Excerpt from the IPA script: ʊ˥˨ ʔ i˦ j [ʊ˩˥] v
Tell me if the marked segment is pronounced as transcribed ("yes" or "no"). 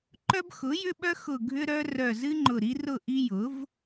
yes